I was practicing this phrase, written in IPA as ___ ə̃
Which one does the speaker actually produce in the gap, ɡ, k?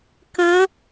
k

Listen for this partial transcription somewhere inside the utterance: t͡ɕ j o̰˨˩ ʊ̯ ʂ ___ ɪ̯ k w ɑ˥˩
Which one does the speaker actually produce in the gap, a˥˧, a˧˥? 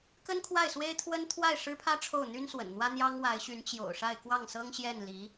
a˥˧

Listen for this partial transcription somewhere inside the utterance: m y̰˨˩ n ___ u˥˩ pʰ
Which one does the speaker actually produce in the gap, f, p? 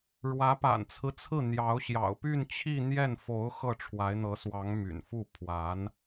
f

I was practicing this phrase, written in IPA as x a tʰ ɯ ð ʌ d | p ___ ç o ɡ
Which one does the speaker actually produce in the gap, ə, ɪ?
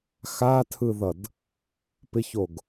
ɪ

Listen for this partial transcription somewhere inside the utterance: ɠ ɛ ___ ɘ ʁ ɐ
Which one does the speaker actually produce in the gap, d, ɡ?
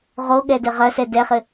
d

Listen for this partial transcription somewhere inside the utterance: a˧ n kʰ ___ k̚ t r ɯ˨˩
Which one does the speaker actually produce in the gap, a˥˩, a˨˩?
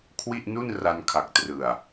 a˨˩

